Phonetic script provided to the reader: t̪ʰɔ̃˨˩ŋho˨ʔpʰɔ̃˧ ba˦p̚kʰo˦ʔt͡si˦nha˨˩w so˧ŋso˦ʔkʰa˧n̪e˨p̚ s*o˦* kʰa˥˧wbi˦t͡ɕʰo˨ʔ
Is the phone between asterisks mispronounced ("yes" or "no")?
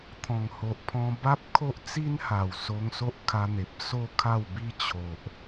no